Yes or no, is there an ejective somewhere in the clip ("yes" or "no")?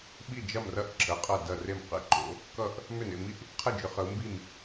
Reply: yes